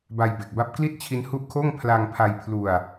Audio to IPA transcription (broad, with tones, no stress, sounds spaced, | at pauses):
b a˧ j b e˨˩ k̚ b a˦˥ p̚ k l i˥˩ t̚ t͡ɕʰ i˦˥ n h u˦˥ ʔ kʰ oː˥˩ ŋ pʰ l a˧ ŋ pʰ a˧ j pʰ l u˧ a̯